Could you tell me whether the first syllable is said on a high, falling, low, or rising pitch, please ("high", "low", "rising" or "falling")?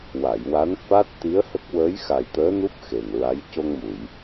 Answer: low